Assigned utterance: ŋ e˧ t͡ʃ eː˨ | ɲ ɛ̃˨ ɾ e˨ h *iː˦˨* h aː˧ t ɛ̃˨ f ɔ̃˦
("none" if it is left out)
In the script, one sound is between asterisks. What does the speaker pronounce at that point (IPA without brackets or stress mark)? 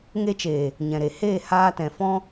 eː˦˨